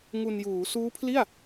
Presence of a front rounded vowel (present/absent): absent